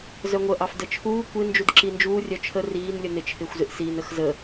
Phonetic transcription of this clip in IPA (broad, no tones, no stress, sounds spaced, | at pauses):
z œ ŋʷ ə ʔ ɑ f d ə t͡ʃʰ uː kʷ ɪ n d͡ʒ u d ǁ i n d͡ʒ uː rʲ œ t͡ʃʰ ə r iː n lʲ ə n ɪ t͡ʃʰ ɪː xʷ z ɪ ʔ s iː n ə x z ə